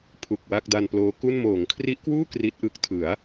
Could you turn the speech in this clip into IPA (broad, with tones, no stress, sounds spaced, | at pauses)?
pʰ u˨˩ k̚ w a˥˩ k̚ d a˧ n p l oː˦˥ k u˥˩ n m oː˩˦ ŋ kʰ r i˦˥ ʔ k w uː˥˩ k r i˦˥ t̚ ʔ ɯ˦˥ k̚ tʰ ɯ˩˦ a̯